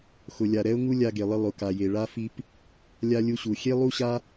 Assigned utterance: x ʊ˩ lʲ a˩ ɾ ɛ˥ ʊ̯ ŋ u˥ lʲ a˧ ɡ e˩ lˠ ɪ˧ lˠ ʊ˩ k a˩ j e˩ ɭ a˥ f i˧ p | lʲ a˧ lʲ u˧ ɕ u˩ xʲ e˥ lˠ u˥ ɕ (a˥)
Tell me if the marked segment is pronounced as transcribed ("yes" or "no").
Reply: yes